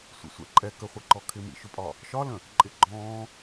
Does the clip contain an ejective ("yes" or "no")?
yes